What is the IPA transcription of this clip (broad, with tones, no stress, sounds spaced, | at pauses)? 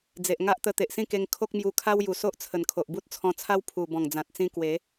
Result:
d͡z e˨ ʔ ŋ a˦ ʔ t̪ ə˧ t̪ e˨ ʔ s ĩ˥˧ k e˧ ŋ kʰ o˦ k̚ m j u˧ kʰ a˦ w j u˨˩ s o˦ ʔ t͡sʰ ə˨˩ n kʰ o˨ ʔ b u˦ t̚ t͡sʰ ɔ̃˧ t͡sʰ a˦ w pʰ u˨˩ b ɔ̃˨˩ ŋ d͡z ã˨ t̚ t͡s ĩ˧ k w e˨˦